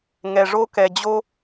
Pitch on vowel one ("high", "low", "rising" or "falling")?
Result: low